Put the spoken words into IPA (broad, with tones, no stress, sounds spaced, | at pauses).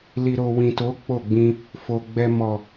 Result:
l i˨ ɾ o˨ w ĩ˨ t o˨˦ k͡p o˦˨ ɡ͡b ĩ˧ | f o˨ ɡ͡b ɛ˧ m ɔ˨